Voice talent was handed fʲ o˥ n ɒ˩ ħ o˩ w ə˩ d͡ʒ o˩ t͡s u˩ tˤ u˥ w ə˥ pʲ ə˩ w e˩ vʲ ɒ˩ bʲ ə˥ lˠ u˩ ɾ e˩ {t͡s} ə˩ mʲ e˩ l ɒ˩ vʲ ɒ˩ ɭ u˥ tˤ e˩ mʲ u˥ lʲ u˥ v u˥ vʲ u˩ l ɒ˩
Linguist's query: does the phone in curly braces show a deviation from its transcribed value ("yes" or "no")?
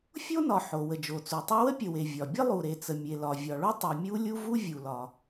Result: no